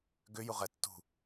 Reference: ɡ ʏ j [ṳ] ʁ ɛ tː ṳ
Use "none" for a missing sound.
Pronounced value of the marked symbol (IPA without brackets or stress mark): u